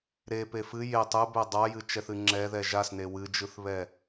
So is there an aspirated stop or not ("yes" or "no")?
no